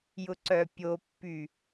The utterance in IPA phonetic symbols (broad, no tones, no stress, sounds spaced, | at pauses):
j ʊ ǀ œ pʲ o pː y